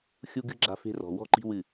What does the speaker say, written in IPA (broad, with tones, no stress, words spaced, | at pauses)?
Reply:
xʲu˦ɡɨ˦ ɡ͡ǁa̤˦fe̤˦rɔ̤˨ wɔ̤˦ǃi̤˦ wɨ˦˨